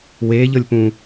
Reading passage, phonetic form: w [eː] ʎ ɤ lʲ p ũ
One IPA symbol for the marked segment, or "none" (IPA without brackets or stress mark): eː